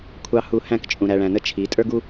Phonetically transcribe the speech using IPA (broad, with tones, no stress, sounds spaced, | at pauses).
kʷʰ ɑ˨ h u˨ h æ̃˦˨ k t͡ʃʼ ũ˨ ɾ æ˨ ɭ æ̃˨ n ə˦ t͡ʃʰ i˨˦ tʼ ə˞˦ ɡ u˦